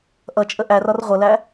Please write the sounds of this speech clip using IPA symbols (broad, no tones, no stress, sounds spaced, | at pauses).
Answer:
ʔ ʌ t͡ʃʼ ə ʔ æ r ɒ r ʁʷ ʌ l æ